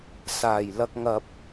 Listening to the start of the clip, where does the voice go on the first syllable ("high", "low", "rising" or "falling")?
low